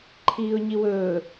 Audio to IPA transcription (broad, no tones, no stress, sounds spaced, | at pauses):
ǃʰ iː ʊ̯ ɲ i w ɵː